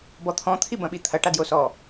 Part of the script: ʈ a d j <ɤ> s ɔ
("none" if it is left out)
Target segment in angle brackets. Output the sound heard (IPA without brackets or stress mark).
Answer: o